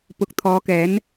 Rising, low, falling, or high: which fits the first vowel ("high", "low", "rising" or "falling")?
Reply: rising